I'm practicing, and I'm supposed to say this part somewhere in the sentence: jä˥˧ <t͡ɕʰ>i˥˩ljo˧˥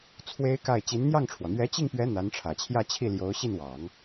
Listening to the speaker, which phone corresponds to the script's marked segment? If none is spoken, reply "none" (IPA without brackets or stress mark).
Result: t͡ɕʰ